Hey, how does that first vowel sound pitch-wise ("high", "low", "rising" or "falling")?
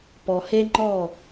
low